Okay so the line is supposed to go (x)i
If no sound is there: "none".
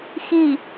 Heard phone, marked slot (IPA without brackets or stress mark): x